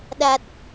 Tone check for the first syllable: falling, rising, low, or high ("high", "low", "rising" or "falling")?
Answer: low